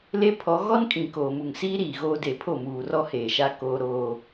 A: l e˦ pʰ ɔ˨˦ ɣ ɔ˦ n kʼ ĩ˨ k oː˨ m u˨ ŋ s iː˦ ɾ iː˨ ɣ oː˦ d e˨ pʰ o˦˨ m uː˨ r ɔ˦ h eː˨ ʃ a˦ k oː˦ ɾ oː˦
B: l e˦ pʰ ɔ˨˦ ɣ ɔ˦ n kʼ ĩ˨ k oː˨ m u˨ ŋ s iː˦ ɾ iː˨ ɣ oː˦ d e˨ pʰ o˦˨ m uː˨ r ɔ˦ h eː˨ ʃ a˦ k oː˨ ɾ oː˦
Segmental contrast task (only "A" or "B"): A